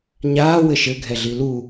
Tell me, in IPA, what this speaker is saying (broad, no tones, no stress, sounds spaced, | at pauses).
ɲ aː w ɘ ʃ ɘ ɡʱ ɛ ɮ i l u